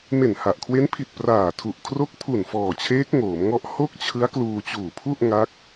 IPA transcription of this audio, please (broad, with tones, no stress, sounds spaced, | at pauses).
m e˨˩ n h a˨˩ ʔ kʰ w e˦˥ n pʰ i˨˩ t̚ p r aː˨˩ tʰ u˨˩ ʔ kʰ r o˦˥ k̚ pʰ u˨˩ n f ɔː˨˩ t͡ɕʰ eː˦˥ k̚ ŋ oː˩˦ m ŋ ɔ˦˥ ʔ h o˥˩ k̚ t͡ɕʰ ɯ˦˥ a̯ k l uː˧ t͡ɕ uː˨˩ pʰ u˥˩ ʔ ŋ a˦˥ k̚